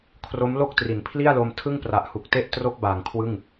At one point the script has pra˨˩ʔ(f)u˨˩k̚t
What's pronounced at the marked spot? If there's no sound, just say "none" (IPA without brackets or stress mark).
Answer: h